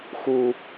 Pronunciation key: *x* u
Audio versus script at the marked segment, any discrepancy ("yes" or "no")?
no